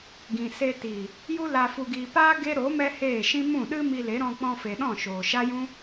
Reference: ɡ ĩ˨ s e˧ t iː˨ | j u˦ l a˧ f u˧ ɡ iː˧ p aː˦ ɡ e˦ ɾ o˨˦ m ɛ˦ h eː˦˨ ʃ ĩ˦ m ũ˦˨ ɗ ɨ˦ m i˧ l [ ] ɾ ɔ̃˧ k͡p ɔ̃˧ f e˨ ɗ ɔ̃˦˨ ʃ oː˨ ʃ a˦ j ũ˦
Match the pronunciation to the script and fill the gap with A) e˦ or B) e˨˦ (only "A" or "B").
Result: B